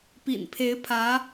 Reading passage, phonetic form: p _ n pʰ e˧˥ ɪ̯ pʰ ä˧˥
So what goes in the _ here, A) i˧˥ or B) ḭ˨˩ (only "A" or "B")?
B